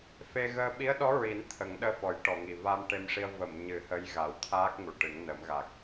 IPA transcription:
f e˧ ɣ əː˧ ɓ i˧˥ ə̯ ɗ ɔ˧˥ ɹ i˨˩˦ n t̪ʰ ə˨˩˦ ŋ ɗ əː˧ f ɔ˨˩˦ j ʈ ɔ˨˩˨ ŋ i˨˩ v a˧ m ʈ e˧ m ʂ i˧ ə̯ v ə˨˩˨ m ɲ ɨ˨˩˦ h ə˧˥ j ɣ a˨˩˦ w t̪ʰ aː˦˥ k̚ ŋ u˨˩˨ ʈ ɨ˨˩˦ ŋ n ə˨˩˦ m ɣ a˨˩ k̚

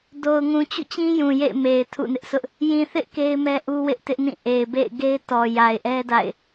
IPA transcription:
d o˨ ʊ̯ ŋ ũ˨ t͡ɕ ṵ˦˨ t͡ɕ ĩ˦ j ũ˨ j ḛ˦˨ ɪ̯ m e˨ ɪ̯ tʰ ṵ˦˨ n ɪ˦ ʔ s ʊ˦ ʔ | j ĩ˨ θ ɪ˦ ʔ k e˦ ɪ̯ m ɛ˦ ʔ u˦ w ɪ˦ ʔ t ɪ˦ ʔ n ĩ˦˨ ʔ e˨ ɪ̯ b ḛ˦˨ ɪ̯ ɡ e˦ ɪ̯ t ɔ˨ j a˨ ɪ̯ ʔ ɛ˦ d a̰˦˨ ɪ̯

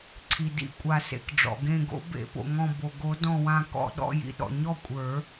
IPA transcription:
ǀʰ i˩ d ḭ˧˩ kʷʼ a˨˩˦ s ḛ˩ k ɖ͡ʐ ɔ̰˩ ɡ ẽ˧˩ ɡ o̰˨˩˦ b ḛ˨˩˦ p o̰˩ ŋ ɔ̃˧˩ b o˩ ɡ o˨˩˦ d ɔ̃˧˩ w ã˧˩ k ɔ̰˧˩ ɗ ɔ̰˥˩ j ḭ˧˩ ɗ ɔ̰˩ ɲ ɔ˥˩ kʷʼ ə˞˨˩˦

